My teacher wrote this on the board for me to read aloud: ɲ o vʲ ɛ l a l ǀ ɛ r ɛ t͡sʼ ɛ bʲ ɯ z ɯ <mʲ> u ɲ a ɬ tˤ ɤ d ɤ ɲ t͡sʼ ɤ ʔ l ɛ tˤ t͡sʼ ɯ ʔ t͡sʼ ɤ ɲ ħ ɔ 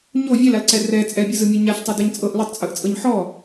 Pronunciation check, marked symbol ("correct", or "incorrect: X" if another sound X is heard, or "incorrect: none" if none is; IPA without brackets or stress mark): correct